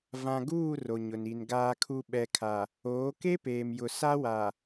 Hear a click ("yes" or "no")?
no